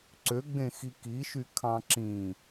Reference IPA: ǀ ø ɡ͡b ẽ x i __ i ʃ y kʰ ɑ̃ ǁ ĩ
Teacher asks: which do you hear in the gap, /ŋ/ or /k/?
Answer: k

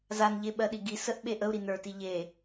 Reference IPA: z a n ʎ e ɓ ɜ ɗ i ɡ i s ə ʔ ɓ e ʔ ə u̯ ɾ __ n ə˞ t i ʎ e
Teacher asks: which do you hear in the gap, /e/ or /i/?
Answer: i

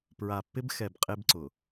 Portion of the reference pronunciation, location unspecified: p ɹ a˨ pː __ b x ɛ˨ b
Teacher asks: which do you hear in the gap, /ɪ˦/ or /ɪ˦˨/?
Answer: ɪ˦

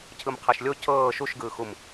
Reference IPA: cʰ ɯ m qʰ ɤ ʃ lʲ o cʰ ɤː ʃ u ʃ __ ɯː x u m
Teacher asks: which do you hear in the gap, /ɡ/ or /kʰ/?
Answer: ɡ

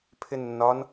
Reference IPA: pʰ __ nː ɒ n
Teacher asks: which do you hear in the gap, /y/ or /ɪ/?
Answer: ɪ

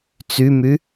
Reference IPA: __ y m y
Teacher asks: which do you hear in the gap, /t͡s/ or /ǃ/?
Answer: t͡s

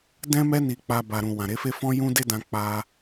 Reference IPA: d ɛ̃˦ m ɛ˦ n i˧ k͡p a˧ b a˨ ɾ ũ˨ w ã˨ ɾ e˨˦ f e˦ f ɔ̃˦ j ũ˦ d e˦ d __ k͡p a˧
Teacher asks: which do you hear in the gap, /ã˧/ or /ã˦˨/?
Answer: ã˧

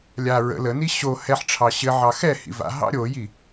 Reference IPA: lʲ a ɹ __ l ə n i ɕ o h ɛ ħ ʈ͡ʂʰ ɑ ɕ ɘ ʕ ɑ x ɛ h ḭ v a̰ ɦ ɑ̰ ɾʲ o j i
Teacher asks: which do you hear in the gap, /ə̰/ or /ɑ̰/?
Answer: ə̰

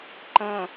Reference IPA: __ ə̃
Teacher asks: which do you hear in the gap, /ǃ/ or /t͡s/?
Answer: ǃ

